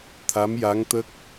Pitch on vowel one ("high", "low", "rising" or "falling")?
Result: rising